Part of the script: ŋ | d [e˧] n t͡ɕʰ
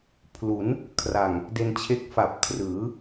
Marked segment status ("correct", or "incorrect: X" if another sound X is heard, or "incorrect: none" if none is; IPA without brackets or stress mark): correct